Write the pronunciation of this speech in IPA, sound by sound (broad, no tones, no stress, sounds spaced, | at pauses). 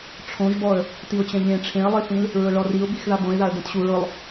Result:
ʈ͡ʂʰ õ ʒ b ɔ ə̯ | t i ʊ̯ t͡ɕ ɛ̃ ʎ ẽ ʈ͡ʂʰ ẽ ə̯ lˠ i θ ĩ l | ɹ ʊ ɭ ɔ r i ʊ̯ b i x ð a b õ ɪ̯ ð a ə̯ d ɛ̃ t ɕ u ɹ ʊ lˠ